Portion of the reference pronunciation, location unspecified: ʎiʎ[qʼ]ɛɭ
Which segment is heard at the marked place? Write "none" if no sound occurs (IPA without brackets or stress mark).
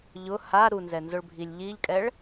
kʼ